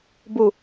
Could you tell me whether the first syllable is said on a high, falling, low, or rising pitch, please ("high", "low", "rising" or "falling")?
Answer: low